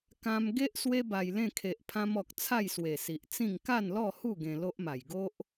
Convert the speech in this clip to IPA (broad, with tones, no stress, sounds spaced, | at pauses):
k ã˧ m ɡ e˦ ʔ s w e˦ b a˧ j l ẽ˥˧ kʰ e˨ ʔ pʰ ã˧ m ɔ˨ k̚ t͡sʰ a˥˧ j s w e˨˩ s i˨ ʔ t͡s ĩ˥˧ ŋ k a˥˧ n l ɔ˥˧ h u˥˧ ɡ ẽ˧ l o˦ ʔ m a˨˩ j ɡ o˦ ʔ